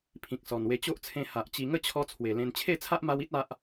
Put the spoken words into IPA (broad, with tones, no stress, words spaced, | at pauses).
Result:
pʰĩ˨k̚sɔ˨˩nwe˧ t͡ɕo˦ʔt͡sʰẽ˧ ha˨ʔ t͡ɕi˧ ŋə˥˧t͡ɕʰɔ˧ t͡sʰwe˨˩lẽ˧n t͡ɕʰe˥˧t͡sʰa˦ʔma˧wi˦t̚ a˦ʔ